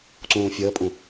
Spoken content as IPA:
ǀũːfʲəːpʼũ

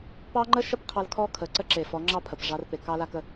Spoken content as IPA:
pɑ˦ŋ͡ǃə˦ʃə˦p qʰɑ˦l kʰɔ˦kʰə˨ ǀə˦ǁe˨fɔ˨˦ŋ͡ǁɑ˦ pʰə˨pʐɑ˦r pe˨ kɑ˦la˦kə˦

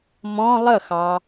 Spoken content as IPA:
mɔ̃ lˠəxɑ

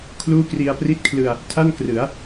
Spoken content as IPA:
kʰluː˥˩kri˧a̯pri˥˩t̚kʰlɯ˧a̯ | tʰa˥˩nkrɯ˩˦a̯

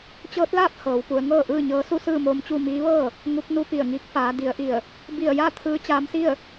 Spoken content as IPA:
t͡ɕɤː˧˥t̚laː˥˨p̚ hɤː˩˧wpu˩˧ə̯ ŋɤː˥˨ʔɯː˥˨ɲɤː˧˥ su˥˨sɯː˥˨moː˧mt͡ɕu˥˨ miː˧˥ʋɤː˥˨ | ŋu˧˥k̚nu˧˥pi˧˩ə̯ŋiː˧˥k̚ faː˩˧di˩˧ə̯ʔi˧˩ə̯ | bi˧˩ə̯ja˥˨ t̪ʰɯː˧˥t͡ɕaː˧˥msi˥˨ə̯

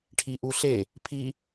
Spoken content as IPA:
ʈʰiʔuɬe | pʰi

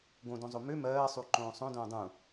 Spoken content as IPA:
ɡõdõzˤo mø mɜːsˤu ǃõːsˤõdõː dˤũ

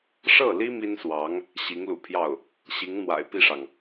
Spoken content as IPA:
ʂɤ˥˩li˥ mi˥nswɑ˧˥ŋ | ɕi˧˥ŋlṵ˨˩pʰjɑ˥˩ʊ̯ | ɕi˧˥ŋ n̪wa̰˨˩ɪ̯pi˥˩ʂɑ˩ŋ

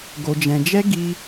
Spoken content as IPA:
ɡo˧d͡ʒɛ̃˧d͡ʒɛ˦ ɡi˦

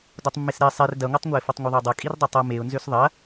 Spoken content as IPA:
dotˤmːesɾe sˤer dɐŋʷɐtˤŋʷaɪ̯ fʌtˤŋʷʌðˤødˤɐ kʼirdˤɐtˤʌ meʊ̯nzøs ðˤɐ

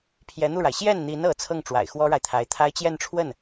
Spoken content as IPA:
pʰjɛ˧˥n̪u˥˩ɻa˩ɪ̯ ɕjɛ˥˩nn̪i˧˥n ɤ˧˥ t͡sʰɤ˥˩ŋʈ͡ʂwa̰˨˩ɪ̯ xwɔ˥ɻa˨ɪ̯t̪ʰa˧˥ɪ̯ t̪ʰa˥ɪ̯ t͡ɕjɛ˥˧nʈ͡ʂʰwə˥˩n

